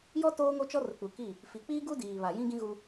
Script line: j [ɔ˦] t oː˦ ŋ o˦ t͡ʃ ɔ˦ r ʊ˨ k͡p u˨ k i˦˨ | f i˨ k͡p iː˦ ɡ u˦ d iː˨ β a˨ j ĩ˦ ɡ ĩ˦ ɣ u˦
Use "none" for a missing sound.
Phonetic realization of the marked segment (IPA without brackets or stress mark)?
ɔ˦